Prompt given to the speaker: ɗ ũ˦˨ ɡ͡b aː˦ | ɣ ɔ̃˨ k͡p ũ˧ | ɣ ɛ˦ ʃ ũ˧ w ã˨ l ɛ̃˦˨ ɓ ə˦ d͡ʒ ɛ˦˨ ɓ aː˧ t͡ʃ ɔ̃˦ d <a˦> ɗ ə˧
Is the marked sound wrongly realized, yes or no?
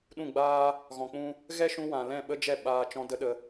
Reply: yes